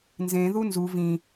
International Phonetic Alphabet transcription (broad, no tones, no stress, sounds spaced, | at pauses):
n z ẽ ð u n z u v ĩ